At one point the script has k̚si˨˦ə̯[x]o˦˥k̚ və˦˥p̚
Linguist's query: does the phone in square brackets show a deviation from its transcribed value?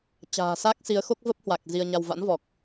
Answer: no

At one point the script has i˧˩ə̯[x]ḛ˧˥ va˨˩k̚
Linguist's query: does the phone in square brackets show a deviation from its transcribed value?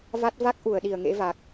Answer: yes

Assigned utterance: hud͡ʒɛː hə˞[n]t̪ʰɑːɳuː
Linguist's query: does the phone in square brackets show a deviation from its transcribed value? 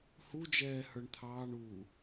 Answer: yes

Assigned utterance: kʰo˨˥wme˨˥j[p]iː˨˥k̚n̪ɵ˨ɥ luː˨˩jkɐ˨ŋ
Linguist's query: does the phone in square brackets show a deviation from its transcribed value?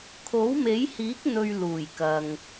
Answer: yes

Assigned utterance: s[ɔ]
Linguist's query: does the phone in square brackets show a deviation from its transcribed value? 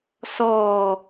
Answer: yes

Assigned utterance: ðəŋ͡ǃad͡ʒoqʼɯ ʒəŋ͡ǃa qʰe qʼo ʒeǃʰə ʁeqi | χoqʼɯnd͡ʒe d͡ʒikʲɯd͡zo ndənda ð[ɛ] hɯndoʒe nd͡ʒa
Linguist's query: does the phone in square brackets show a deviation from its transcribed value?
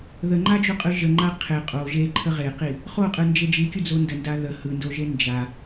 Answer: yes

